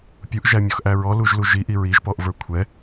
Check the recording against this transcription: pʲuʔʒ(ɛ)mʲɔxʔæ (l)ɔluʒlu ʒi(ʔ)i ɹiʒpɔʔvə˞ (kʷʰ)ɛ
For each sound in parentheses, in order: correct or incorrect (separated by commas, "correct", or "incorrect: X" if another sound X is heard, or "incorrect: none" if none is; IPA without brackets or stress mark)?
incorrect: æ, incorrect: ɹ, correct, correct